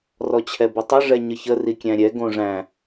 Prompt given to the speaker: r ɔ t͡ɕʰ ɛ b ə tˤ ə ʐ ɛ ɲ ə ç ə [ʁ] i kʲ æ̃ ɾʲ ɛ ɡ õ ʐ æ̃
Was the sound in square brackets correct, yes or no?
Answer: no